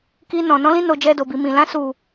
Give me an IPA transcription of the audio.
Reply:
k i˧ n ɔ̃˨ n ɔ̃˨˦ l ĩ˧ n o˨ d͡ʒ ɛ˧ d o˨ b i˨ m ĩ˨ l ã˧ s u˨

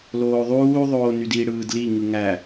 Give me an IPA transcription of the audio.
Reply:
l oː ðˤ uː ðˤ oː n y d i ɽ ɯː d l i ŋ ɯ ŋ æ

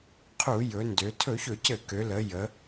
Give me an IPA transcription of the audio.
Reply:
qʰ u˧˩˧ j ɵ˩˧ n d ø˩˧ tʰ ɵ˧˩˧ ç ɵ˧˩˧ c ɘ˧˩˧ k ø˩˧ l ə˩˧ j ə˩˧

